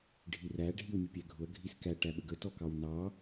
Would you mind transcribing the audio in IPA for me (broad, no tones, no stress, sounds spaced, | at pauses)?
ɖʱ i r æ ɖʱ i w mʲ ʊ pʲ æ ɡʱ ʊ ɐ̯ ɡʱ i s k æ ʈ æ ɓ ə ɡ ə t ɔ k ɑ w n ɑ